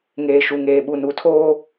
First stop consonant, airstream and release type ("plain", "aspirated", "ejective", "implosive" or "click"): implosive